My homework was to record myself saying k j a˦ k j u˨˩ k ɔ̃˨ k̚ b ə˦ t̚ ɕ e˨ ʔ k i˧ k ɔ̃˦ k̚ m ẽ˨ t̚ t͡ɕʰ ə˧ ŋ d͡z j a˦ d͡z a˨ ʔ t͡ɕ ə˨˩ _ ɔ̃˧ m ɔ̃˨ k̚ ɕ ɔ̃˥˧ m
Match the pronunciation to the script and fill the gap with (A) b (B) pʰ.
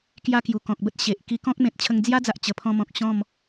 B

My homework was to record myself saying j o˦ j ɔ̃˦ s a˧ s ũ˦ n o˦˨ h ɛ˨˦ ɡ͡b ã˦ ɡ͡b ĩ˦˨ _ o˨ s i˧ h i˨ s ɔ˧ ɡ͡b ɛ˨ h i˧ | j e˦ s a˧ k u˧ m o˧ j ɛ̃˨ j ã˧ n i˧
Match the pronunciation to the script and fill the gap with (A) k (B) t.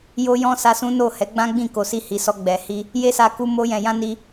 A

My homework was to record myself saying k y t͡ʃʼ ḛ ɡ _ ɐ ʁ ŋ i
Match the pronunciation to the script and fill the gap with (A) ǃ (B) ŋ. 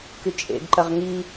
A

